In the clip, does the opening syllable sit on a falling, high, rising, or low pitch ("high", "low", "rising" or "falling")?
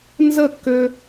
falling